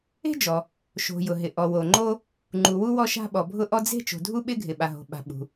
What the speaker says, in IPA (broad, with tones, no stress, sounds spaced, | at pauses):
e̤˥ d͡ʒ ɔ˩ | ʃ o̤˩ j ʊ˩ ɦ ɪ˩ ʔ ɔ˩ w o˩ ŋ͡ǃ o˥ | ŋ͡ǃ u˩ w u˥ w ɔ˥ ʃ a̤˥ ɓ ɔ˩ bʱ ʊ˥ ʔ ɔ˥ d͡z e̤˥ t͡ʃ o̤˩ dʱ u˥ ɓ ɪ˥ ɡʱ ɪ˩ ɓ a˩ ɦ o̤˩ ɓ a̤˩ ɓ ṳ˩